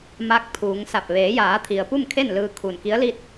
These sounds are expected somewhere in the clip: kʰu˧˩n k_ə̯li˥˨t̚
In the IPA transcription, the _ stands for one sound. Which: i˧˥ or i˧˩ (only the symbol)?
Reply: i˧˥